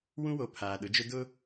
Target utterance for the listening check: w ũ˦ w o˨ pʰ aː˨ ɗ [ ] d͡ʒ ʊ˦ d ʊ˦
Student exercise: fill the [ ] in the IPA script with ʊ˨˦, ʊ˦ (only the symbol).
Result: ʊ˨˦